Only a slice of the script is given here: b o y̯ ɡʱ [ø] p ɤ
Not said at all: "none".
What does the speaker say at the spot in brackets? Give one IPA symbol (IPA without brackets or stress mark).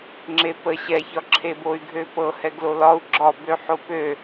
ø